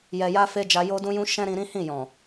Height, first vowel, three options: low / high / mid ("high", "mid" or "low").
mid